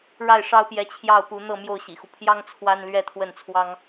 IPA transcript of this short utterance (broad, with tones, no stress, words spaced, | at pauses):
ɻa˥˩ɪ̯ʂɑ˥ʊ̯pjɛ˧˥ t͡ɕʰjɑ˥˩ʊ̯pu˧˥ n̪ɤ˥˧mjo˥˩ʊ̯ ɕḭ˨˩xu˦ pʰjɑ˥ŋ t͡sʰwa˥nlɥɛ˥t̪ʰwə˥˩nt͡sʰwɑ˥ŋ